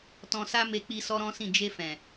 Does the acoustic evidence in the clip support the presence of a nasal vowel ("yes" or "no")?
yes